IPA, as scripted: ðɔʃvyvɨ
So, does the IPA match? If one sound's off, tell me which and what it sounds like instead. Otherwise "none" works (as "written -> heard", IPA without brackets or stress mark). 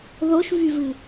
ɔ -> o